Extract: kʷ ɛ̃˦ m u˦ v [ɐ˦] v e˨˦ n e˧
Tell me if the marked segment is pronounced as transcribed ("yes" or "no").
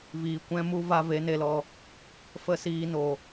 no